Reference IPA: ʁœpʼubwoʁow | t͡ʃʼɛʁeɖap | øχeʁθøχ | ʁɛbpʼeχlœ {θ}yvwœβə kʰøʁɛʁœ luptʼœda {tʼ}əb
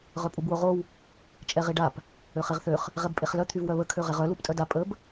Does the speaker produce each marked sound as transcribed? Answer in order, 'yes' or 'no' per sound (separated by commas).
no, no